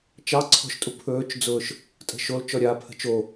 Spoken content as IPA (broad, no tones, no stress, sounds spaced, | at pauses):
t͡ʃ ɑ ǀʰ ɔ̤ ʃ tʼ u pʰ ɵː t͡ʃ d͡z ʊː ʃ | tʼ ə̤ ʃ o l t͡ʃ ɔ ɾʲ aː pʰ ə̤ t͡ʃ o